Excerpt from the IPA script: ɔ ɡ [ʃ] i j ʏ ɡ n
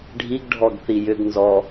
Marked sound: incorrect: θ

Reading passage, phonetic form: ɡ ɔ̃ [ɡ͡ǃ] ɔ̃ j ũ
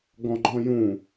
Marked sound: correct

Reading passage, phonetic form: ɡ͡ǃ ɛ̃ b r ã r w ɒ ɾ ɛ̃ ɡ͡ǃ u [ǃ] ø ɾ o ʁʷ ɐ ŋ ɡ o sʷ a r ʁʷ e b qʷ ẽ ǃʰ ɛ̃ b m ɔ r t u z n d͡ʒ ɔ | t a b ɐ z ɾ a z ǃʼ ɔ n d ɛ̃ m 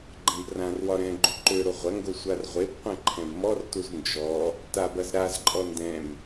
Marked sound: correct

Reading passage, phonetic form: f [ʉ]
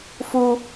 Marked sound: incorrect: u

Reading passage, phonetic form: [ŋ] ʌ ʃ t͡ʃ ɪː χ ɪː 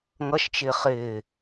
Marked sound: correct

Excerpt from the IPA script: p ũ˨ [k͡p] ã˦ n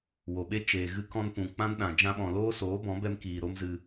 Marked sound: correct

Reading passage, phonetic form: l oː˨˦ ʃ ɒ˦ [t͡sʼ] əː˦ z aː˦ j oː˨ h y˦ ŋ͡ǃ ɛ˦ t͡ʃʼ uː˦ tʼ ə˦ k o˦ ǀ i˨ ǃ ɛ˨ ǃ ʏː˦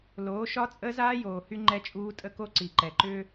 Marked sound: correct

